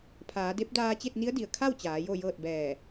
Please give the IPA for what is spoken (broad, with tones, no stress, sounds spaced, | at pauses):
pʰ aː˩˧ d e˧˥ p̚ d aː˧ t͡ɕ e˥˨ t̚ n i˧˥ ə̯ d i˩ ə̯ kʰ a˥˨ w t͡ɕ aː˩˧ j o˥˨ j ɤː˥˨ t̚ b ɛː˧˩